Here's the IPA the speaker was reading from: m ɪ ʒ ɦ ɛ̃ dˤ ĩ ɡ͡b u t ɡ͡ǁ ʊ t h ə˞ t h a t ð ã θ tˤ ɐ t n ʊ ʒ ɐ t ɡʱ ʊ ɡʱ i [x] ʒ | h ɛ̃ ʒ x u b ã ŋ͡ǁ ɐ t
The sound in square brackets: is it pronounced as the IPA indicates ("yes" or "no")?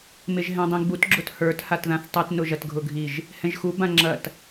no